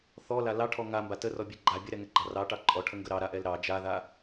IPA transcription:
θɔla lɑʈʰɔ ŋamba tərɔbʲɛ ɡ͡ǃa bʲəɾɛŋɛɡ͡ǃɑ rɑʈɑ ǃʼɔʈʰəŋɡə ɾɑɾaʔɛl ɾɑ d͡ʒaða

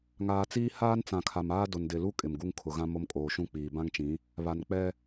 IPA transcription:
ŋaː˨t͡siː˦ haː˦nt͡sã˨kʰa˨maː˦ dʊ˨ndɪ˨lu˦ kʼɪ˨mɡu˦ŋ kʰʊ˨ɣã˦ mo˦mkʼoː˨ʃũ˦ k͡piː˨ bã˦ŋt͡ʃĩ˨˦ | βa˨nk͡pɛ˦

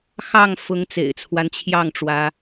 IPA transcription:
xɑ˥˨ŋfʊ˨˦ŋ t͡sḛ˨˩ɪ̯t͡sʰwa˦nt͡ɕʰjɑ˥˨ŋʈ͡ʂwä˨˦

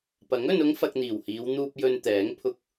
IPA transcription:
pɐ˨˥ŋ ɵ˧nʊ˥ŋfɐ˧k̚ n̪iː˨˩whiː˨˧wn̪uː˧p̚ jɵ˧nt̪ɛː˨˥ŋ pʰʊ˧k̚

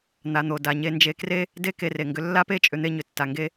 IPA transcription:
n̪a˩n̪o˩ da˩ ɲe˧nd͡ʒe˧kre˥ | de˥ ke˧re˩ŋɡʏ˧ lːa˥pe˥t͡ʃʼʏ˧n̪e˧ ɲʏ˩tːa˩ŋɡe˧

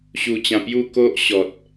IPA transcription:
ɕu˧t͡ɕã˧pju˥˧ ko˦ʔɕɔ˨t̚

